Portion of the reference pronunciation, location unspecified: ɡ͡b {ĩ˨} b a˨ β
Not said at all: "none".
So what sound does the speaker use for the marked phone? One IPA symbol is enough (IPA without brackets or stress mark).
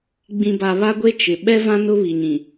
ĩ˨